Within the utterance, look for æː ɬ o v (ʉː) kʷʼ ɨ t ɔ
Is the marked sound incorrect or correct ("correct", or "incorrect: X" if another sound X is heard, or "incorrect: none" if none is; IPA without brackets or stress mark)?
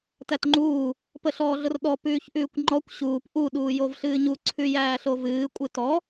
incorrect: ɨː